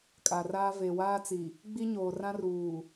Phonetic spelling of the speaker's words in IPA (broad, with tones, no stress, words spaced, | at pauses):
kʼa˨raː˦ ve˨waː˦t͡si˨ | ɡ͡bi˦ɲoː˨rã˦ruː˨